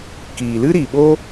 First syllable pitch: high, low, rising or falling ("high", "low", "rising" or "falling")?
low